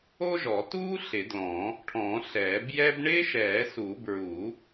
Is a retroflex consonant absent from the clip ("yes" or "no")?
no